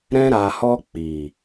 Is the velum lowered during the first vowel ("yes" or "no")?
yes